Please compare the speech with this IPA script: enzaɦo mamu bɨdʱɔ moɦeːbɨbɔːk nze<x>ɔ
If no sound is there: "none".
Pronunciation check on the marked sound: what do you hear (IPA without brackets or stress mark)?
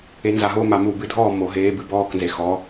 x